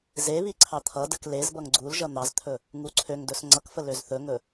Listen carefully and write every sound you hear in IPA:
z e β i ǀʰ ɑ t̪ʰ ʌ d ə k l e z b ʌ ŋ ɡ͡ǀ u l ʒ ʌ n̪ ɑ z t̪ʰ ɵ | ŋ u ǀʰ ø ŋ d ɵ s ŋ͡ǀ ʌ k f ə l ø z θ ɵ ŋ ɵ

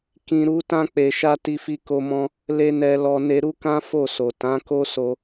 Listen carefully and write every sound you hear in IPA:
k ĩ˨ ɾ u˨˦ t ã˧ k͡p e˨ ʃ a˧ t i˧ f i˧ k o˧ m ɔ̃˧ | l e˦ n ɛ˧ l ɔ˧ n e˧ ɾ u˦ k ã˦ f o˦˨ s o˨ t ã˨˦ k o˦ s o˧

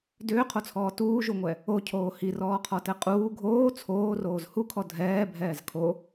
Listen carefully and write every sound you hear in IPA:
d ʏː qʰ o t͡sʰ ɔː t uː ʒ u ŋʷ ɛ | o cʰ oː h i r ɔː qʰ ɔ t ɛ qʼ uː ɡʱ oː t͡sʰ oː r oː z h u kʰ ɔ dʱ ɛː bʱ ɛː z kʰ o

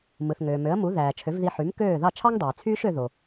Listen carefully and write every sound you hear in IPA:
m ɯ˩ θ ŋ øː˩ m ø˩˥ ə̯ m u˩˥ ð æː˩ t͡ʃʰ ø˩˥ v ð i˧ ħ y˩˥ m k øː˥˩ ð ɑ˥˩ t͡ʃʰ ɑ˥ ŋ dˤ yː˩ t͡sʰ yː˥ ʃ ø˧ ð o˩

